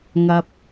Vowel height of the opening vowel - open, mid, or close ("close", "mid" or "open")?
open